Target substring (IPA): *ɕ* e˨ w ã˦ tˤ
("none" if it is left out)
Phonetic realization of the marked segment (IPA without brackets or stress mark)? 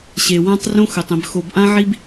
ɕ